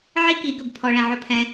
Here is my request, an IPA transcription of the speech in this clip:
ʕ i˦ k i˨˦ ɡ ɵ˨ b pʰ ɔ˧ ɭ ɛ̃˧ ʕ ɵ˦ pʰ ɛ̃˦

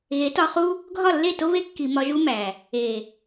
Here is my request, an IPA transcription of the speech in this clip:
ɣ e˨˦ t ɒ˧ χ u˦ | ɡʱ ɒ˦˨ lː e˦˨ t o˦ β e˦ kː i˨ m ɒ˧ ʒ u˦ m æ˨ | e˨

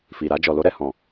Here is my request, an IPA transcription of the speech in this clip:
f i˨ ɾ a˧ d͡ʒ ɔ˨ l o˧ ɾ ɛ˨ h ɔ̃˨

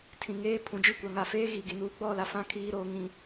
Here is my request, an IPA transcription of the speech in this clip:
tʰ ĩ˨ ŋ eː˦ pʰ ũ˨ d͡ʒ i˦˨ kʷ a˨ ŋ a˨ f eː˦ ɣ i˨ ɡ i˨ n uː˨ ɡ͡b ɔ˦˨ l a˨ f ã˦ kʰ iː˦ ɾ oː˦ ŋ ĩ˦

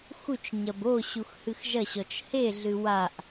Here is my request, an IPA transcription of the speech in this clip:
x u t͡ʃ ɲ ɐ b o ɕ u x h ɨ x ʒ ɐ ɕ ɔ t͡ʃ h e ɮ ɨ w a ʔ

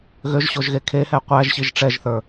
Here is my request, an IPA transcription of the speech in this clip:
ɣ ø ʒ ɕ o ʒ ɣ e kʰ e h ɛ qʷ æ ʒ ɕ i ʒ ʈ͡ʂ ɛ ʒ θ ə˞

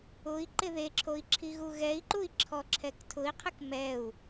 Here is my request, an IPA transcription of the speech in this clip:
ʊ i̯ ǃ ɪ ð e ǁʰ o i̯ ǁʰ i ɣ u ɣ ɛ i̯ ǃ u i̯ ǁʰ ɔ ǁʰ ɛ k tʰ ʊ i̯ qʰ ɪ k m ɛ u̯

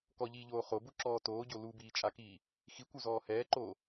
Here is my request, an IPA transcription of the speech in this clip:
k ɔ ʎ iː ʎ oː χ o b u ǁ ɔː t oː ɟ o l u b iː t͡ʃʼ a k iː | x i kʷ u z ɔː h ɛː ǃ oː

